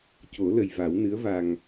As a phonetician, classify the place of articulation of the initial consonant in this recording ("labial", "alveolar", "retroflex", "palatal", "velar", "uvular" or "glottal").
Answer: palatal